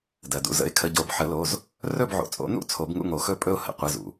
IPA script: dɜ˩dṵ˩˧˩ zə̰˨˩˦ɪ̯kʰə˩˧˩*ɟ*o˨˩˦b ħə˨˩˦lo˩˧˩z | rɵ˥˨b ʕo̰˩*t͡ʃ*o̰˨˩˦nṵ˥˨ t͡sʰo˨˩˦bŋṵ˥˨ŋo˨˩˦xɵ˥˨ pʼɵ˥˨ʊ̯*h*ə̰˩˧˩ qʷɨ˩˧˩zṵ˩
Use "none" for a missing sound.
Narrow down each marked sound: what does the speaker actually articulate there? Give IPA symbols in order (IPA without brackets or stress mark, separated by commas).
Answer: ɟ, t͡sʼ, h